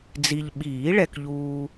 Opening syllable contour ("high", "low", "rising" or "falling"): low